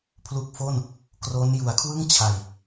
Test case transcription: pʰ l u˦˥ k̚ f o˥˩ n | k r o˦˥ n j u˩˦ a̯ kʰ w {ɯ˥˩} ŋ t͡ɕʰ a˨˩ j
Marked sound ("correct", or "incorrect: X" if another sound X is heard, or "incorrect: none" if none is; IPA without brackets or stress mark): correct